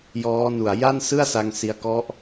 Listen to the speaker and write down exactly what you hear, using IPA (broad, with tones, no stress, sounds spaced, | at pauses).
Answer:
j ɔː˦˥ n u˨˩ a̯ j a˥˩ n s ɯ˥˩ a̯ s a˧ ŋ s i˧ a̯ k ɔ˦˥ ʔ